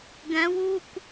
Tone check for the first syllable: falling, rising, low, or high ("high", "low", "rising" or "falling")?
rising